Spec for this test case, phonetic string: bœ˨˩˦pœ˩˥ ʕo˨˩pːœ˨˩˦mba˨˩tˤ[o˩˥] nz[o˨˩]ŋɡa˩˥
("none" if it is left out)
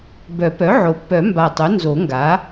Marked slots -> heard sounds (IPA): o˩˥, o˨˩˦

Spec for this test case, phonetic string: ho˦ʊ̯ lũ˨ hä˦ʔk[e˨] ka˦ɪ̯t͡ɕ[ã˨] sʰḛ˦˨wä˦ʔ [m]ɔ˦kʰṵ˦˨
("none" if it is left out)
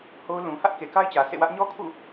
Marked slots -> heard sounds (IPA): e˨, ä˨, ɲ

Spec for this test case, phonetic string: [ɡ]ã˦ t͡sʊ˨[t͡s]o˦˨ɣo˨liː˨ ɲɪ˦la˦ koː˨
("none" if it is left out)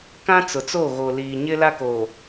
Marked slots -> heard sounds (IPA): k, t͡s

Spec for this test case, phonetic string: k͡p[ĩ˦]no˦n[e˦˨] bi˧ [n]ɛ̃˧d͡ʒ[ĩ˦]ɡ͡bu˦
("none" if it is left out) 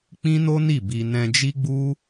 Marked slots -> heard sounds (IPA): ĩ˦, i˦˨, n, i˦

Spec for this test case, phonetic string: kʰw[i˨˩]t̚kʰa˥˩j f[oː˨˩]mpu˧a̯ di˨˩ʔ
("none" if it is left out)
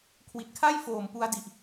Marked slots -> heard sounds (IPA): i˨˩, oː˨˩

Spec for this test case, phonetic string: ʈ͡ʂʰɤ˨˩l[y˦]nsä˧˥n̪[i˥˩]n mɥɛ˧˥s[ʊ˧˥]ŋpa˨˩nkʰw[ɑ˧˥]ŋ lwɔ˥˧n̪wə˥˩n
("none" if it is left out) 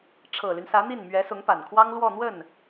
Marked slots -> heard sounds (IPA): y˦, i˥˩, ʊ˧˥, ɑ˥

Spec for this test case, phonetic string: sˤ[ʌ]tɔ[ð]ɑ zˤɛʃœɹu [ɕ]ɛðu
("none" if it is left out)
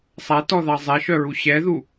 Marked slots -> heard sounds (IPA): a, ð, ɕ

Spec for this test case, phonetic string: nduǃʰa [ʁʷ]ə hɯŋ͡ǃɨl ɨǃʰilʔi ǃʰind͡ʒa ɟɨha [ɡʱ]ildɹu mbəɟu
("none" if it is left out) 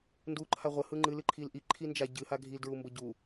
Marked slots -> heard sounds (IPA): ʁʷ, ɡʱ

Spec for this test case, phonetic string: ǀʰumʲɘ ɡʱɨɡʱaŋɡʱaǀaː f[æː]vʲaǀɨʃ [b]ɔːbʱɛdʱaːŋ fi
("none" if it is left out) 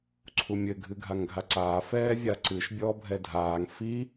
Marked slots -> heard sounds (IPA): ɛː, bʲ

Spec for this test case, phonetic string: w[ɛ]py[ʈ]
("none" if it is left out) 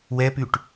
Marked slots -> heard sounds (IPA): ɛ, ʈ

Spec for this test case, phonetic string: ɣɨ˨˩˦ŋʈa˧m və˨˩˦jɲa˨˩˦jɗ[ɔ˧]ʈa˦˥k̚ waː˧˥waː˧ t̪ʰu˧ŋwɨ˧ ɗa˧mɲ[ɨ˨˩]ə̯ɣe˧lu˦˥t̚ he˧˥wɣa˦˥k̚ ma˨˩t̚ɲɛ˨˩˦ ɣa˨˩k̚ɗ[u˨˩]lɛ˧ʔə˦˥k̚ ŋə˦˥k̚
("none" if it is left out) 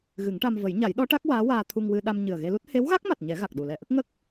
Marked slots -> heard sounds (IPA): ɔ˧˥, ɨ˨˩, u˨˩

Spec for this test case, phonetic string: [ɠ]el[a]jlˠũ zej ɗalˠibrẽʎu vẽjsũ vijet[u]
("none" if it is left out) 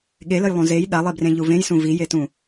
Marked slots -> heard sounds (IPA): ɠ, ə, ũ

